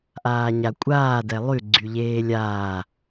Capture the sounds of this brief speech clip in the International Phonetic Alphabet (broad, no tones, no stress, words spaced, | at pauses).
ʔaːɲakʷʼaː dɛlˠy ɡ͡ǀyʎeːlʲaː